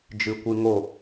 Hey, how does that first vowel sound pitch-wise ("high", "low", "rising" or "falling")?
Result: low